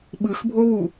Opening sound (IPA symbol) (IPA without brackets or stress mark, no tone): ɓ